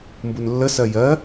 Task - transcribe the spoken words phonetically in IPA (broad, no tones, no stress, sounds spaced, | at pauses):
m b u n lː ə s ɜ j ɜ